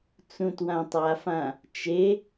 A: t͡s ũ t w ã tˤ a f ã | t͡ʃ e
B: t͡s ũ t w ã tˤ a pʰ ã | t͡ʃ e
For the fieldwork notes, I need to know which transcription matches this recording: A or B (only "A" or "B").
A